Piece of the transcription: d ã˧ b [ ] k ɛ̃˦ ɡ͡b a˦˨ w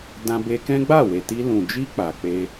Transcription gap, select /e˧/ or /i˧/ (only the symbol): e˧